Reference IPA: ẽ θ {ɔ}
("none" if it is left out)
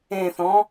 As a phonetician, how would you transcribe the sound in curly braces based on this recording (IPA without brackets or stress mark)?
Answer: ɔ̃